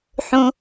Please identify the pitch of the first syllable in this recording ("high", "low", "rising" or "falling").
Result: low